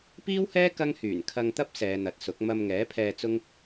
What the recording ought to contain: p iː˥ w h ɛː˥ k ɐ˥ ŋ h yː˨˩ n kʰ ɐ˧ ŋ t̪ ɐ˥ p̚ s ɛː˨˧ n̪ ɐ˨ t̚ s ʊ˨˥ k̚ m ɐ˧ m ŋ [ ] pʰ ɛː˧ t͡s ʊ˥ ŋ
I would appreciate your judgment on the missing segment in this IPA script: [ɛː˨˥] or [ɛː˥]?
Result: ɛː˨˥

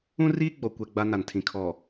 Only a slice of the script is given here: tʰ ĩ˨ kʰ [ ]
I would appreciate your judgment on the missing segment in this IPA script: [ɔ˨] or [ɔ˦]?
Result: ɔ˨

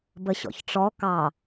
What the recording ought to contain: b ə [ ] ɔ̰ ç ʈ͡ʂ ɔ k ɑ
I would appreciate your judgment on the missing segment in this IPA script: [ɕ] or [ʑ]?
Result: ɕ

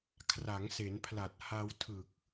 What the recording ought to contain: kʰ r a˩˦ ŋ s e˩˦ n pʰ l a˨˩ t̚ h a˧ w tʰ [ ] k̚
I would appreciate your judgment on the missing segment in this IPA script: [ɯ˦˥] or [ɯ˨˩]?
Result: ɯ˨˩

